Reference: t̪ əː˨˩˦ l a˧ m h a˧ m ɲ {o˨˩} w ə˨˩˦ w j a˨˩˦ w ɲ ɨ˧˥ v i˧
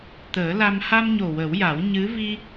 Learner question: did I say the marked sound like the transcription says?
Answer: yes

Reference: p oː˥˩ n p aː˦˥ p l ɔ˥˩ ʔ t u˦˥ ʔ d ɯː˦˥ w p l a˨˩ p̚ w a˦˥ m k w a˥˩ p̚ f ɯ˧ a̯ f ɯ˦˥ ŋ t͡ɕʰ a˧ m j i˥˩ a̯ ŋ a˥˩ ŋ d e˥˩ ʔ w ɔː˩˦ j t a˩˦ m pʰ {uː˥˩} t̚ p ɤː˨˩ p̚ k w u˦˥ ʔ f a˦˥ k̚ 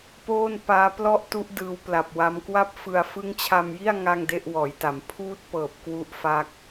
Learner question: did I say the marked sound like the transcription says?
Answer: yes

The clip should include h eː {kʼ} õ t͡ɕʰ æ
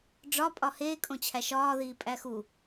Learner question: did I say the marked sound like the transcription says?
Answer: yes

